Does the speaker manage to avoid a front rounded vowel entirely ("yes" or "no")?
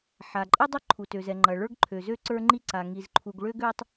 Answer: no